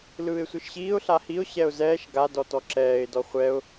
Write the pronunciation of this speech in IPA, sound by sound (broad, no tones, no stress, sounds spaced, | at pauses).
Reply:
l ɯː ɪ̯ sʷ ɯ ʃ ɕ iː ʊ̯ ɬ a h i ʊ̯ ɕ ɛ ʊ̯ z ɛː ʃ ɡ a d ɔ t ɔ ǁ ɛː ɪ̯ d ɔ χʷ ɛ ʊ̯